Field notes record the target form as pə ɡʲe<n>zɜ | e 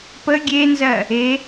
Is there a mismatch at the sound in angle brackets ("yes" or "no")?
no